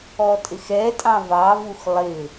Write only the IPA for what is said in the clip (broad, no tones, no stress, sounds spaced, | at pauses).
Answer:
ɔ tʼ ɪ x ɛ tʼ ɑ̃ v ɑ v u x lˠ ɪ